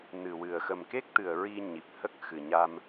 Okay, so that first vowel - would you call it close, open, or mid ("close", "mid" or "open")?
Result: close